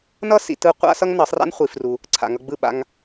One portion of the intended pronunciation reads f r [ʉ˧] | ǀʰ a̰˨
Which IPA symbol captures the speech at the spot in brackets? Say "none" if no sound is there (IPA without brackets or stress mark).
u˧